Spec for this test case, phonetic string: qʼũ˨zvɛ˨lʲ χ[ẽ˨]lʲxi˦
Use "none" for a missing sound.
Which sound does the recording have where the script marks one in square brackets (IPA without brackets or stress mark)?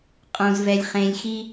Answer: ẽ˨